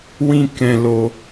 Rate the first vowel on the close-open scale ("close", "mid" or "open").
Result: close